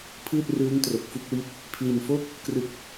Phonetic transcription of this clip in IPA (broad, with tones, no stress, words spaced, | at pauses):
pʰɯː˥˩t̚rɯː˦˥ŋ tro˨˩k̚fu˥˩k̚wi˦˥t̚ | pʰli˨˩nfo˥˩k̚ | krɯ˥˩k̚